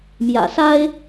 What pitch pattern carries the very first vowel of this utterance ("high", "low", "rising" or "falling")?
low